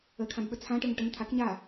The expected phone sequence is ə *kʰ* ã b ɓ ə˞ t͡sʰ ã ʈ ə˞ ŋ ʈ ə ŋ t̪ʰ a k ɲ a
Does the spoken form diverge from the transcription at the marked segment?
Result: no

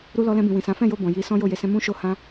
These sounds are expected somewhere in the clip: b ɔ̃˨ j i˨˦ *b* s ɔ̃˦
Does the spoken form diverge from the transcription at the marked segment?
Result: yes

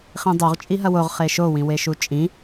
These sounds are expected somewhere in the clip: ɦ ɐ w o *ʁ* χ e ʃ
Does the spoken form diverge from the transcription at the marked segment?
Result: no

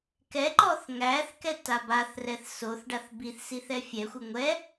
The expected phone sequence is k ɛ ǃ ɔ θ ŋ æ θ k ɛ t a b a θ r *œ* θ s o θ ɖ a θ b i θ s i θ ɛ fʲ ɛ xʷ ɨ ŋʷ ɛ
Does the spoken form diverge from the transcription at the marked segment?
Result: yes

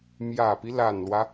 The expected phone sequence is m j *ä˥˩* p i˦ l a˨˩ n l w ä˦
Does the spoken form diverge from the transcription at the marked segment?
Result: yes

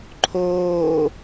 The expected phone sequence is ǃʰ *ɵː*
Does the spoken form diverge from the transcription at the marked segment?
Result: yes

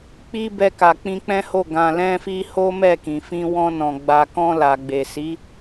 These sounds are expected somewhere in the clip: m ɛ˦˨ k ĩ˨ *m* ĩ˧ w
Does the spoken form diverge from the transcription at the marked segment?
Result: yes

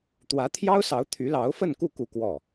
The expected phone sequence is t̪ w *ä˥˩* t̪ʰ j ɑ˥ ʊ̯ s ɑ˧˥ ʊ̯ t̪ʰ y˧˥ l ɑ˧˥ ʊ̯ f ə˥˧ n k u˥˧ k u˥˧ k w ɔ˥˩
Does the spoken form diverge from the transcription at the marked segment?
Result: yes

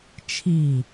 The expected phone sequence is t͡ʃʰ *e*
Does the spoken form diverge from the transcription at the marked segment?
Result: yes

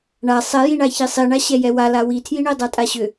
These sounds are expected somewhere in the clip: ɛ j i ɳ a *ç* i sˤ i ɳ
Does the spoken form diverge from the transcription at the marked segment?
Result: no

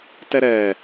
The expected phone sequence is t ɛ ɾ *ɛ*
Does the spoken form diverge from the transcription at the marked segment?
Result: no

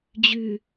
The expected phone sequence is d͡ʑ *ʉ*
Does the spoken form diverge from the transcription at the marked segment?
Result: no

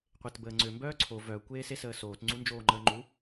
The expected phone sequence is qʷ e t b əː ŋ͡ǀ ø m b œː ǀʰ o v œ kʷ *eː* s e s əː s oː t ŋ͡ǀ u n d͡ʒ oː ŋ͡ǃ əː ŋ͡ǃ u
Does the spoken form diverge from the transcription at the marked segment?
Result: no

